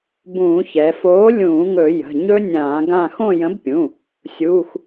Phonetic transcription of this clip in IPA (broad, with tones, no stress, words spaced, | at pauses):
bũː˧˩˧çɛ˩˧ foː˨˥lʲũː˧˩˧ ŋɵ˧˩˧jə̤˩˧˩ɲɵ˦˥ nʲãː˧˩˧ɡã˦˨ xõ˦˨jə̃˨˥bpʲũ˩˧˩ | sʲuː˩˧˩x